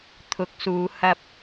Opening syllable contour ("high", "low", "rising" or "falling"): rising